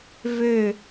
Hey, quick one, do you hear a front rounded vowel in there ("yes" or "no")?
yes